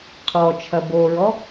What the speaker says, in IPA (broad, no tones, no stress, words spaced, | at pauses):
qʰɔt͡ʃʰɐ boɹɔ